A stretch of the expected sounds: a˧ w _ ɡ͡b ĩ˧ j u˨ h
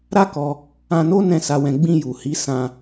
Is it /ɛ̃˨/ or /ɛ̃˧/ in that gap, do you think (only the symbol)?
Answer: ɛ̃˧